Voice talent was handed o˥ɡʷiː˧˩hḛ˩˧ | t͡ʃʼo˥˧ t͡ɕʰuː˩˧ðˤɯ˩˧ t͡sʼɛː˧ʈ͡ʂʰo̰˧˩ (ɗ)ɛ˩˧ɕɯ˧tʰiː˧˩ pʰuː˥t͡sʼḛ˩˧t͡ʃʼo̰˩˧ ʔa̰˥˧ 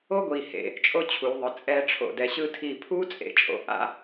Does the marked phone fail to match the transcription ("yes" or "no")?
yes